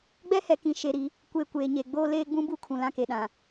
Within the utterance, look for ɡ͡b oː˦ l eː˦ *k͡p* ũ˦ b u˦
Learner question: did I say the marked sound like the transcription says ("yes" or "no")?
no